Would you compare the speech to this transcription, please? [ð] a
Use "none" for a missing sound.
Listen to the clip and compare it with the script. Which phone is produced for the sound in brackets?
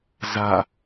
z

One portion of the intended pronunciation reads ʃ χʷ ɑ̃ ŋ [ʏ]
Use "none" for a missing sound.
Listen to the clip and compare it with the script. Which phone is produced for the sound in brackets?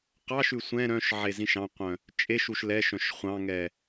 ɛ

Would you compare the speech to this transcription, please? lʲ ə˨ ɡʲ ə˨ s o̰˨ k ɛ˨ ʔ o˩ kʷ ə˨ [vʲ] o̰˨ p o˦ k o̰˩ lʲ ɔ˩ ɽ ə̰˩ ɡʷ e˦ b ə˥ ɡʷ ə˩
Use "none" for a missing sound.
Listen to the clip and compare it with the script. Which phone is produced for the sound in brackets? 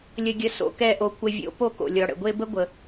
vʲ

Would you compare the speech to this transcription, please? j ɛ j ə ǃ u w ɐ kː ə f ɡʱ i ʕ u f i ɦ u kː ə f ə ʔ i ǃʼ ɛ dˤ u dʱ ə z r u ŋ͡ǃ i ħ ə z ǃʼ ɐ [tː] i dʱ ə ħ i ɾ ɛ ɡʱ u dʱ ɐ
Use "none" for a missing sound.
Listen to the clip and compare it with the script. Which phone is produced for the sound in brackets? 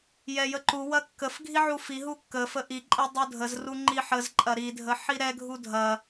ɾ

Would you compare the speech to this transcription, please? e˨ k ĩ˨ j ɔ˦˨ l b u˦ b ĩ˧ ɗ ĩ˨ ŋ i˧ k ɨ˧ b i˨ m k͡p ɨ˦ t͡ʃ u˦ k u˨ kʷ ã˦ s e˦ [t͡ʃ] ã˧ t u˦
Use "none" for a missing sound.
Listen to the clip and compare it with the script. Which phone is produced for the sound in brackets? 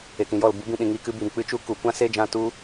d͡ʒ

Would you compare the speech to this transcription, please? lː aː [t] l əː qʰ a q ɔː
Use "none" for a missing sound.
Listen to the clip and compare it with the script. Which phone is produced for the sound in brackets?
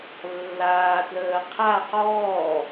t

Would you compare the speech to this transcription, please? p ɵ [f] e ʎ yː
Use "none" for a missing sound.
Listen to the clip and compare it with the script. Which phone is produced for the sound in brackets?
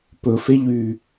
f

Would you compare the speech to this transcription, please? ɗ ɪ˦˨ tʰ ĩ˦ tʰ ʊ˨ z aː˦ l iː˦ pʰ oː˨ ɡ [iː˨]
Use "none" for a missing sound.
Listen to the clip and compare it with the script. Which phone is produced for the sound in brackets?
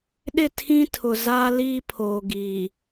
iː˨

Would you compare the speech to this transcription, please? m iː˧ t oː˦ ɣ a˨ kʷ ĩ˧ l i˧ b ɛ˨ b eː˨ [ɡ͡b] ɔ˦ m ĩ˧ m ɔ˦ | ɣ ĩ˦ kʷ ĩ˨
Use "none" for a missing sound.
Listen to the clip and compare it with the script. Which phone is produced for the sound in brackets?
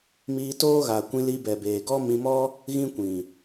ɡ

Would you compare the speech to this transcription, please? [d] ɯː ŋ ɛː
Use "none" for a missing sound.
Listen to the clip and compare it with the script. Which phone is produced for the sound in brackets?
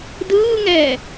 d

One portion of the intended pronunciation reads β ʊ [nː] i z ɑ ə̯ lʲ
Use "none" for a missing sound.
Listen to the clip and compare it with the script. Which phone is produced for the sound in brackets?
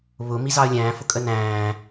m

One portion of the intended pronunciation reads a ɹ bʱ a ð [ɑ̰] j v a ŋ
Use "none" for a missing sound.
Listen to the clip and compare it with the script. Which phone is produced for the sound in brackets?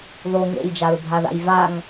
a̰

